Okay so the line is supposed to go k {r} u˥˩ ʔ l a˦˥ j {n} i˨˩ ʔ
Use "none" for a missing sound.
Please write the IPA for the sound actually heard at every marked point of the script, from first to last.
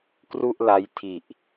r, tʰ

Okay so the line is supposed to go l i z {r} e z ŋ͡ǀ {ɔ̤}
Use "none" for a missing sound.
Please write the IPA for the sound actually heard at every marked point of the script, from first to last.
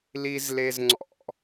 l, ɔ̰

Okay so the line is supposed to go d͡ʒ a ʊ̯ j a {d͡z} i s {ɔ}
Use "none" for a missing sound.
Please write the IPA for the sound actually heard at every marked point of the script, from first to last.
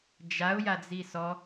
d͡z, ɔ

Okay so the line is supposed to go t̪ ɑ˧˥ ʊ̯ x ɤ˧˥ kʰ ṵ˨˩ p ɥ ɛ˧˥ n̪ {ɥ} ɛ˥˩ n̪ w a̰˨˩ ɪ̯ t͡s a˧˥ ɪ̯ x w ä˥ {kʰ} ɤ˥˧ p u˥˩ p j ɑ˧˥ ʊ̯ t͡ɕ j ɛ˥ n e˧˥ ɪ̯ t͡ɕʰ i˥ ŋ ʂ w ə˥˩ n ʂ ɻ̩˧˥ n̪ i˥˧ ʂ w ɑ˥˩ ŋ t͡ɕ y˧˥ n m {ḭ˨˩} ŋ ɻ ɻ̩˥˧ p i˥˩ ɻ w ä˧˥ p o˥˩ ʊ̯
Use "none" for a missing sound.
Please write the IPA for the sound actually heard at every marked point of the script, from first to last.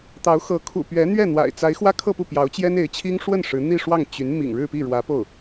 ɥ, kʰ, ḭ˨˩

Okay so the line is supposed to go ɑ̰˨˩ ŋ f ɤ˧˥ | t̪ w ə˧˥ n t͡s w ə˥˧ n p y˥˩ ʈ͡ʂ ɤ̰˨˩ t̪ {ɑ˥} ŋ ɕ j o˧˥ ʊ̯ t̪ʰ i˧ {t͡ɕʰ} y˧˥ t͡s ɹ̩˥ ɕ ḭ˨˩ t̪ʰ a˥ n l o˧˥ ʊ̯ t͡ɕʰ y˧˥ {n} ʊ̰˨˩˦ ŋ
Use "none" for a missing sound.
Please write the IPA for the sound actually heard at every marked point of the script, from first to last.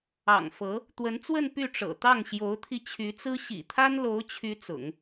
ɑ˥˩, t͡ɕʰ, t͡s

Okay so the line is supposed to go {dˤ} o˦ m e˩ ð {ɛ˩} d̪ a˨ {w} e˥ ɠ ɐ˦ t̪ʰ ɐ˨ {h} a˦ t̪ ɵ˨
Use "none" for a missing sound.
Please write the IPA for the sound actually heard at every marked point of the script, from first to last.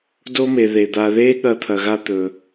d, e˩, ð, ɣ

